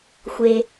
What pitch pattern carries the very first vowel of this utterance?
high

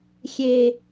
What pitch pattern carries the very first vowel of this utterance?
high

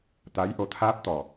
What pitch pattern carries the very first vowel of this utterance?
rising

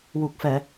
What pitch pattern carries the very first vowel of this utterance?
low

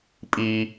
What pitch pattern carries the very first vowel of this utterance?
high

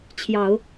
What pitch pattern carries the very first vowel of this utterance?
low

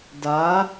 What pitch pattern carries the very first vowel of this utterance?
rising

